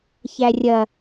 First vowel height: low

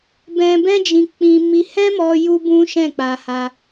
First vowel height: mid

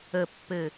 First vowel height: mid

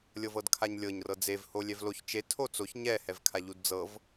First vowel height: mid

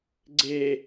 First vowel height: mid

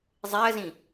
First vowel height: mid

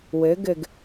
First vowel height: mid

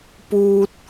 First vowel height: high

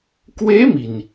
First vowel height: mid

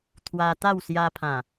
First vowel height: low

